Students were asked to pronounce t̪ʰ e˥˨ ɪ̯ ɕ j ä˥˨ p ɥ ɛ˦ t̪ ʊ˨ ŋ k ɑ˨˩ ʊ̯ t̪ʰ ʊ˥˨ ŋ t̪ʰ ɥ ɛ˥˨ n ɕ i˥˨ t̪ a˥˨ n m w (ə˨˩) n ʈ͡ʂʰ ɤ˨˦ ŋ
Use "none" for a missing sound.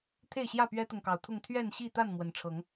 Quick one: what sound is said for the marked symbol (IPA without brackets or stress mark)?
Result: ə˨˩